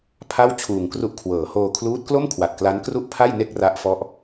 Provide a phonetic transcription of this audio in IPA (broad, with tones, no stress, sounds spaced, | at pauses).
pʰ a˥˩ w t͡ɕʰ uː˨˩ ŋ k r u˦˥ ʔ kʰ w ɤː˩˦ h oː˧ kʰ l uː˦˥ t̚ k l o˥˩ m kʰ w a˨˩ t̚ k l a˦˥ n k r u˥˩ ʔ pʰ a˥˩ j n e˥˩ k̚ r a˦˥ ʔ f ɔ˦˥ ʔ